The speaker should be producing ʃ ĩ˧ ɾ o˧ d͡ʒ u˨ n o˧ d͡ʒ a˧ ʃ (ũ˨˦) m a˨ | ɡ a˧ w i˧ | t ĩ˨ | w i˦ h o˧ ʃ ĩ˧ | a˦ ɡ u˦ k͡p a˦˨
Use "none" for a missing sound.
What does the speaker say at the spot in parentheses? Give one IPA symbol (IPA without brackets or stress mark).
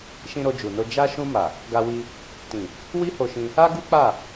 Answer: ũ˧